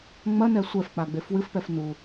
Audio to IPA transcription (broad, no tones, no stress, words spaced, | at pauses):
ŋ͡mɐnɛ sʷɛfk͡paɡ͡bef wɨfpɛf nu